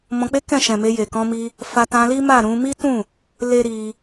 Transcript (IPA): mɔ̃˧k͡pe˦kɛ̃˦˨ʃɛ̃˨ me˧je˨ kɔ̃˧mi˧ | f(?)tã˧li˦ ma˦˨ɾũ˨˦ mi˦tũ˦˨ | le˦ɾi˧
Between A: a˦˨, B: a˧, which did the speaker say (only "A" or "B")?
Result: B